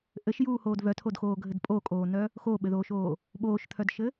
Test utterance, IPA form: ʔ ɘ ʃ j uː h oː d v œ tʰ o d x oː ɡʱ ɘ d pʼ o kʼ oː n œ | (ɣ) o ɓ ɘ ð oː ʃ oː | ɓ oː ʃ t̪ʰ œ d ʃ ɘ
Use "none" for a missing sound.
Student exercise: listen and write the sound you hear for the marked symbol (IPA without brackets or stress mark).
x